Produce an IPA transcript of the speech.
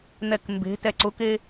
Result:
n̪ ɛ k m b e̤ t ɛ ǀ ʊ k e

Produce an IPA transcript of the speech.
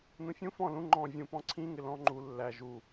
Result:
n ũ fʲ ũ f ɔ̃ l ũ ŋ͡ǃ ɔ̃ vʲ ũ p ɔ̃ ǀʰ ĩ ŋ ɪ l ɔ̃ ŋ͡ǃ u lː æ ʒ u

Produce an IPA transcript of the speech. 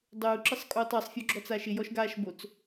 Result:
dˤ uː ǁ ɪ sˤ kʼ uː tˤ ɑ sˤ fʲ ɔ ɡ͡ǁ ɔ t͡s aː ʃ ɪ j ɔ ʃ ɡ aː ʃ b o t͡s

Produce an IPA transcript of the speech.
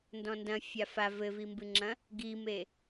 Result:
n d ɔ̃ n d ɐ̃ fʲ a f a v ɘ v i m b ɨ ŋ͡ǁ ɐ̃ | ɡ i m e

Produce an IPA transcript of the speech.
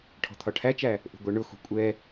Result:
ʈʰ ɔ̤ t̪ʰ ɒ ʈʰ æ t͡ʃ æ | ʔ ṳ ɡʷ ɛ ɳ ʊ x ṳ kʷʼ ɛ

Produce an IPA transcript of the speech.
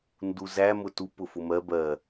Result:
n d u z æ m ʊ t u p ʊ f ʊ m ɜ b ɜ

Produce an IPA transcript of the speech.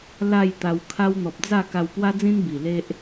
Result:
l a˥˧ j t̪ a˧ w kʰ a˦ w n̪ ɔ˨ p̚ d͡z a˥˧ k a˧ w p w a˦ d͡z ĩ˦ n b i˨˩ l e˦ ʔ

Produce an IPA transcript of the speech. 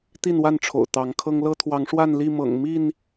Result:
t̪ i˥˨ n w a˥˨ n ʈ͡ʂʰ o̰˨˩ ʊ̯ t̪ ɑ˨˦ ŋ kʰ ɤ˦ ŋ l ɤ˦ t̪ʰ w ɑ˨˦ ŋ ʂ w a˥˨ n l i˥˨ m ɤ̰˨˩ ŋ m i˥˨ n

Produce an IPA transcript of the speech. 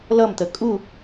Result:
l ʌ m t̪ ə kʼ u

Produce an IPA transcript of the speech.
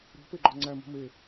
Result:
ɾ i̤ p e ɡ͡ǃ ɒ ŋ͡ǀ æ m o̤ m e

